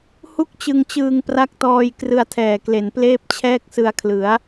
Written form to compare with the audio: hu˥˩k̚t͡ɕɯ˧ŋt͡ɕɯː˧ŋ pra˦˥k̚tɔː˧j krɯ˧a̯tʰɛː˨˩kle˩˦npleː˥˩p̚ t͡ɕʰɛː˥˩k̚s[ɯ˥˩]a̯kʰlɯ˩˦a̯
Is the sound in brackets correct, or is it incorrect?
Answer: incorrect